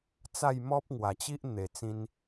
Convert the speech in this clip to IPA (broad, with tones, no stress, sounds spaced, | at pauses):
t͡s a˥˧ j m ɔ˦ p̚ ŋ w a˨˩ t͡ɕ i˦ ʔ n̪ e˨˩ t͡s ĩ˧ n